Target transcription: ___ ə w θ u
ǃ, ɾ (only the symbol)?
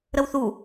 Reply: ɾ